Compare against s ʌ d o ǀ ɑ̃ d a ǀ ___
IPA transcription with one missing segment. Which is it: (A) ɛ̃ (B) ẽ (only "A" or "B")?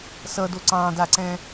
A